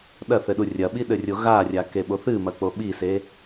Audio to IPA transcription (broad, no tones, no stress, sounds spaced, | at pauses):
ɗ ɐ θ ɘ ɗ u rʲ ɐ ɓ i ɗ ɘ rʲ o ɣ a rʲ a k e ɓ o θ ɨ m ɐ k͡p o ɓ i s e